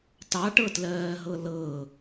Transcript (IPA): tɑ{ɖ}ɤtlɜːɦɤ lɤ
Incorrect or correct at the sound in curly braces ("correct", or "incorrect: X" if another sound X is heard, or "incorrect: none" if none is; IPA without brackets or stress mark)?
incorrect: ʈ